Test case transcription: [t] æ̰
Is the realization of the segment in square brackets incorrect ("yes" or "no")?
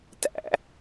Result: no